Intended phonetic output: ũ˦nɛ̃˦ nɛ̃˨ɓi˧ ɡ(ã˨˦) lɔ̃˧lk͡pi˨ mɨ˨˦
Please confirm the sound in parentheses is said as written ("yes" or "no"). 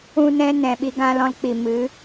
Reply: no